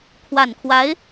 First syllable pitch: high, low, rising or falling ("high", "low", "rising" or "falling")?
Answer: low